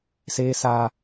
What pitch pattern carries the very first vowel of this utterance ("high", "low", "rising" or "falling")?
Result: high